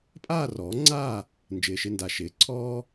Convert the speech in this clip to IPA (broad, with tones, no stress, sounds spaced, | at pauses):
pʼ aː˥˨ r ɔː˩˥ ŋ͡ǀ aː˥˨ | n d͡ʒ ɪː˨ ʃ ɪ˥˨ n d a˨ ʃ ɪː˩˥ ǀʰ ɔː˥